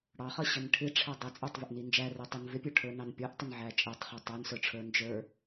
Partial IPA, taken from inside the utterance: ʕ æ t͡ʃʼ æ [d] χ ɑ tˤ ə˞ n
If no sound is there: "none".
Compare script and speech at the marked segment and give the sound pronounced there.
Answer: tˤ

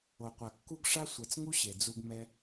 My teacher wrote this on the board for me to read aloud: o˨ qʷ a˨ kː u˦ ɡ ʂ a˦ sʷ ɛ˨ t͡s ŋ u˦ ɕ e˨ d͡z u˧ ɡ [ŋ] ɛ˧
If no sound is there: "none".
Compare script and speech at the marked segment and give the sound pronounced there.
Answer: m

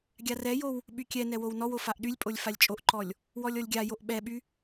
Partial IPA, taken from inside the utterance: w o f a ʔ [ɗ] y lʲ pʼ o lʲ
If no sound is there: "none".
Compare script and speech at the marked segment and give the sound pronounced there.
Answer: ɗ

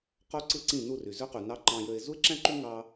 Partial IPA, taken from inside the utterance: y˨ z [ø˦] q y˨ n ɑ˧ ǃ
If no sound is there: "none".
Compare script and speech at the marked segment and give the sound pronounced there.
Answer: ø˦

